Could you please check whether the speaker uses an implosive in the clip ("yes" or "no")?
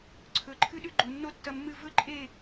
yes